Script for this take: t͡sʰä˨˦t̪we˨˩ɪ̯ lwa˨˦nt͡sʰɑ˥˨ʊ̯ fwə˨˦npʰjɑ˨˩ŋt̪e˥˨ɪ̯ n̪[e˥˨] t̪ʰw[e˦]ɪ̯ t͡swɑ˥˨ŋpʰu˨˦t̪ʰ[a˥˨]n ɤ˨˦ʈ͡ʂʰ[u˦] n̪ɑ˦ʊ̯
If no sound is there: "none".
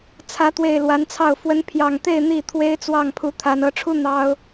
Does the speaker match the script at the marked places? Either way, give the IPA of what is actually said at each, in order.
i˥˨, e˦, a˨˦, u˦

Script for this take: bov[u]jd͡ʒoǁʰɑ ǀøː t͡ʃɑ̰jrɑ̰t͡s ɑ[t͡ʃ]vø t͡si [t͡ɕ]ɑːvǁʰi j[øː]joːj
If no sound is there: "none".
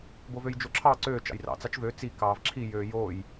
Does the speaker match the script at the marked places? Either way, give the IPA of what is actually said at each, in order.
ø, t͡ʃ, k, øː

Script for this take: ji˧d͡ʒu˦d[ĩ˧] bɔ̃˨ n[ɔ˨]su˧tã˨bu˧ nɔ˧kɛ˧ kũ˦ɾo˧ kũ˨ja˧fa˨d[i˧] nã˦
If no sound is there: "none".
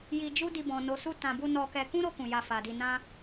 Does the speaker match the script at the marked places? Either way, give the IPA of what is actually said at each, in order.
i˧, o˨, i˧

